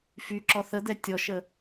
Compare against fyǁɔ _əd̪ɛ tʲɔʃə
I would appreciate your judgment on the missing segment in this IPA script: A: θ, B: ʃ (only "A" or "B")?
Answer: A